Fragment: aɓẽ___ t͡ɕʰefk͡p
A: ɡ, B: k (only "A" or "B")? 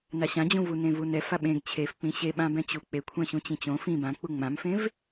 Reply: A